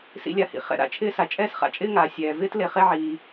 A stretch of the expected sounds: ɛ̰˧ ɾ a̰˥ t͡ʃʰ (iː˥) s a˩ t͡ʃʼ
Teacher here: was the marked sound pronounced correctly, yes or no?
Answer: no